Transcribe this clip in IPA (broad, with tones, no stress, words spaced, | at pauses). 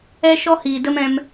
ɛ˧ ʃɔ˦hiː˨ də˦mɛ̃˧m